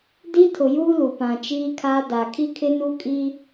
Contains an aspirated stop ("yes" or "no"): yes